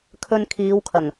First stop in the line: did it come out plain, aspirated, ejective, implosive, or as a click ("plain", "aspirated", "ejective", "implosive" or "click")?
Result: aspirated